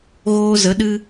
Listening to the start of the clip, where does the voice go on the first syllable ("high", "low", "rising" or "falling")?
high